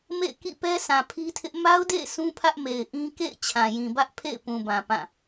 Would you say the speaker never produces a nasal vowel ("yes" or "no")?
no